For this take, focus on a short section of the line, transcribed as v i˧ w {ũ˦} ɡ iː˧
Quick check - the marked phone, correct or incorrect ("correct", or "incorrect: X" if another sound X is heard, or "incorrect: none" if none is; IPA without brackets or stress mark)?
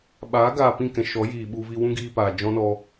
correct